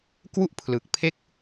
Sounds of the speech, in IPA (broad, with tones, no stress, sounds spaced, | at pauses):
k w u˥˩ ʔ pʰ l ɯ˨˩ k̚ pʰ e˥˩ k̚